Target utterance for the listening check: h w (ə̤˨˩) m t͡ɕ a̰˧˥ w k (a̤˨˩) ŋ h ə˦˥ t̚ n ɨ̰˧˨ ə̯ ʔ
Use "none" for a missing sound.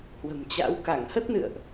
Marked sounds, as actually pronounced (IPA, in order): ə̤˨˩, a˧˩

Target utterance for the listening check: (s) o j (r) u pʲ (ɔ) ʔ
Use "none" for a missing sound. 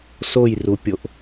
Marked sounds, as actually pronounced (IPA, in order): s, r, o

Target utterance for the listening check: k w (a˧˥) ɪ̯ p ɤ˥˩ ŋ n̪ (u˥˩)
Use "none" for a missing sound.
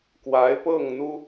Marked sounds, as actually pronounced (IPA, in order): a˧˥, u˥

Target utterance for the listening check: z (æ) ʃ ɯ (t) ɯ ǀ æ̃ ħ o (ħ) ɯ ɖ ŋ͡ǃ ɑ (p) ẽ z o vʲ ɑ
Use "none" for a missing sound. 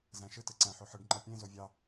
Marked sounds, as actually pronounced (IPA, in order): æ̃, t, ħ, pʲ

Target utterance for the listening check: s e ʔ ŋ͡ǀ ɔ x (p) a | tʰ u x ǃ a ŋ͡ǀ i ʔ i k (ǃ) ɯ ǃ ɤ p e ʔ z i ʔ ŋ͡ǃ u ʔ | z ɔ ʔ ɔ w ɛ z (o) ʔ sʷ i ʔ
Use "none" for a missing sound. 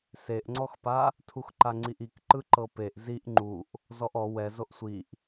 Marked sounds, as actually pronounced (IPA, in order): p, ǃ, o

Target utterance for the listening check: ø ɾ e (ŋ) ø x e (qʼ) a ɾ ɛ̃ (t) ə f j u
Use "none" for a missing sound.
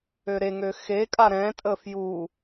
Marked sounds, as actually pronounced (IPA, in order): ŋ, kʼ, tʼ

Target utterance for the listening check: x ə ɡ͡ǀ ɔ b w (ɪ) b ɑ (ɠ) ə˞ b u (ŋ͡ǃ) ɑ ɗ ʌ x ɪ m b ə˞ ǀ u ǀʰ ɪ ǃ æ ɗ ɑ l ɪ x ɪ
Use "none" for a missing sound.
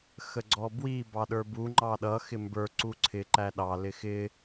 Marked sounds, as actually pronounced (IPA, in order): i, ɗ, ŋ͡ǃ

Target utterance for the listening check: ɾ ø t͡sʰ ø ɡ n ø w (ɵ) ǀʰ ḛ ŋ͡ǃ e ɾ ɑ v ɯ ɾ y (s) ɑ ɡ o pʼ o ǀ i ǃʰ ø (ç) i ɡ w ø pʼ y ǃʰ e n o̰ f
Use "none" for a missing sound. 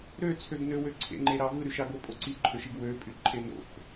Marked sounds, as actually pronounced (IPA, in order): ø, ʃ, ʃ

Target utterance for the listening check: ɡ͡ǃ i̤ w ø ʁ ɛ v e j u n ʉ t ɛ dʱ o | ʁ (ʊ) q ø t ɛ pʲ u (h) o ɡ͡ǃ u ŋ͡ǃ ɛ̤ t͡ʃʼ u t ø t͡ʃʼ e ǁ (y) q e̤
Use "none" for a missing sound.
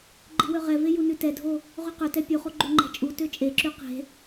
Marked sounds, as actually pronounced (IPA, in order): ʉ, χ, y

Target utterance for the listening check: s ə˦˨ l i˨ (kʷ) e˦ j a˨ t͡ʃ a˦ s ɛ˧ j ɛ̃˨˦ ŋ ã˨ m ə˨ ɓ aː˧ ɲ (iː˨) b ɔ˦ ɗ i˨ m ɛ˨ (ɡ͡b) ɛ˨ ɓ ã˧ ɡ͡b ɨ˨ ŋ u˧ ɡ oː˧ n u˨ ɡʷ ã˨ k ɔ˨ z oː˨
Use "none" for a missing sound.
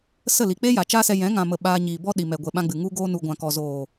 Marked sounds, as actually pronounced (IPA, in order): k͡p, iː˨, ɡʷ

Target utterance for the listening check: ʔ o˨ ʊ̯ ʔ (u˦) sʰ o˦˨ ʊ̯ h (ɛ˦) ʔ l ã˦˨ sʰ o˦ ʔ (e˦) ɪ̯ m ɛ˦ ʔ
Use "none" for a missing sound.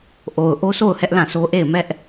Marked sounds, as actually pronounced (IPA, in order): o˦, ɛ˦, e˦˨

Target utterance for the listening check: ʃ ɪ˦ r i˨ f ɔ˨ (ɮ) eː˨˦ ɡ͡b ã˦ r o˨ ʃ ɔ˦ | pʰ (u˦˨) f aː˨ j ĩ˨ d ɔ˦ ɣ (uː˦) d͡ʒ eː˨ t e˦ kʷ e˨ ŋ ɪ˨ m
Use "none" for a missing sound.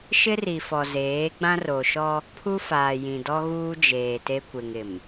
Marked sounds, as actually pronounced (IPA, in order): z, u˦, uː˦

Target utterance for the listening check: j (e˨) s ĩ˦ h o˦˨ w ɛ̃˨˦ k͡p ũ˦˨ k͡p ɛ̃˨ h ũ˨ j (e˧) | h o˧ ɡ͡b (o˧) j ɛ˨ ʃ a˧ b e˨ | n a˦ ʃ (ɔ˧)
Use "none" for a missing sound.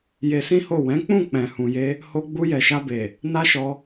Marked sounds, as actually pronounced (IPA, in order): e˧, e˧, u˧, ɔ˧

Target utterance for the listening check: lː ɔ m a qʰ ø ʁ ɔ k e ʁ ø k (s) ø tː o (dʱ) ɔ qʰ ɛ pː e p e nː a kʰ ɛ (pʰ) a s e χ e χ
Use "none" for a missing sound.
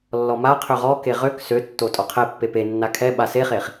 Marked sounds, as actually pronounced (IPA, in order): s, tʼ, ɓ

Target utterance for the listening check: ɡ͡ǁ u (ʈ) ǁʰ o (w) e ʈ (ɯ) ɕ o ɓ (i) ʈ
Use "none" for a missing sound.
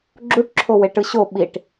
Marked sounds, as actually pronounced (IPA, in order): ʈ, w, ɯ, i

